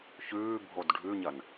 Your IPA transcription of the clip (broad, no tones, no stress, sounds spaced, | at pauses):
ç ʉː bʱ o d ɖʱ ʉ ɲ ɐ n